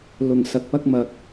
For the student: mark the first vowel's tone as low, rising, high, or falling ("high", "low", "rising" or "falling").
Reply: low